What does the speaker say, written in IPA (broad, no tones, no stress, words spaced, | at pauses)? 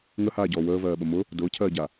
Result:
ŋəhaːɟɔː wəːvɜːɓə mʊ | dʊːcʰɜːɟa